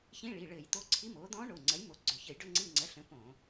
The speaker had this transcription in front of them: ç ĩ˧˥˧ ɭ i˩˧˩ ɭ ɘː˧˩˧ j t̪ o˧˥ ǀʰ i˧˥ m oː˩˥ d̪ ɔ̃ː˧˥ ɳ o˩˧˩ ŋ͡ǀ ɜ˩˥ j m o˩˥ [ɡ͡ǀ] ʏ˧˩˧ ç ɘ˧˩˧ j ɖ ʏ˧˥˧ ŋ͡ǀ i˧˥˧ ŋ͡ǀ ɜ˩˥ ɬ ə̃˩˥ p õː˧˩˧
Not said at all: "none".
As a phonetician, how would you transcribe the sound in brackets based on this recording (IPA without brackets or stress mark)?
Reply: ɡ͡ǀ